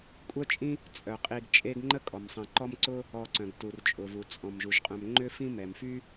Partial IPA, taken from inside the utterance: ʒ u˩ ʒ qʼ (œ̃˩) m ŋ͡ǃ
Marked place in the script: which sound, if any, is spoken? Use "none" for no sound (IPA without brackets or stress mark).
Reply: œ̃˨